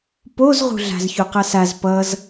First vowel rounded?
yes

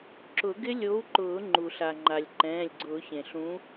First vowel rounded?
yes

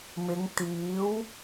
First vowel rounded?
no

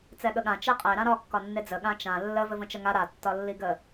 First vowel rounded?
no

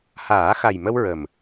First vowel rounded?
no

